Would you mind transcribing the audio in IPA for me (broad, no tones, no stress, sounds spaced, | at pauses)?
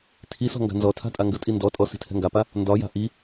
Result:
tʰ i s ɔ̤ ŋ ɡ a̤ n z ɔ tʰ a̤ tʼ a ŋ ɡ ə tʼ i n d ɔ tʼ ɔ s i̤ tʰ ɛ̤ ŋ ɡ a p a | n d ɒ j a̤ ʔ i